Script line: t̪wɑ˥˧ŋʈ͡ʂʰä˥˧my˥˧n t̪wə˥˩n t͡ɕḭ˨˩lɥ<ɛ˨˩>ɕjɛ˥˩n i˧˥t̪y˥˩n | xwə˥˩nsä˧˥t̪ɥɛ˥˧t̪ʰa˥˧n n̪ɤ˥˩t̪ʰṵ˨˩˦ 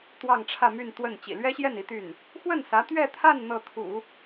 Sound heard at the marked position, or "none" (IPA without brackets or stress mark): ɛ˥